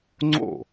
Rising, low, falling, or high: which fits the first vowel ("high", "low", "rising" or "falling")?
falling